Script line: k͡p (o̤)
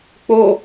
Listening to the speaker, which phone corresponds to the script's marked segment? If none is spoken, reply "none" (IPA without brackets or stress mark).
o